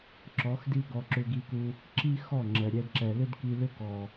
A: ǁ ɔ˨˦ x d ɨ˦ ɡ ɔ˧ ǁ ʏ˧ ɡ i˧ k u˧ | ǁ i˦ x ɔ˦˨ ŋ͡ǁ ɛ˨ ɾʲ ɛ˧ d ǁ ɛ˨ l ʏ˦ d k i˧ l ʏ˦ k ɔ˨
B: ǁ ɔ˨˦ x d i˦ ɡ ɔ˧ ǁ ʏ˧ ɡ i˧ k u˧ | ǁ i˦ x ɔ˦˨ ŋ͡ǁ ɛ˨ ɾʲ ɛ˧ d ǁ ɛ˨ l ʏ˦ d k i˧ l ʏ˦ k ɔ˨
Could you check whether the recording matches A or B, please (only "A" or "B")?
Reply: B